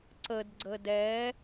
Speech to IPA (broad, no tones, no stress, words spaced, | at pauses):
ǀəd ɡ͡ǀədɛ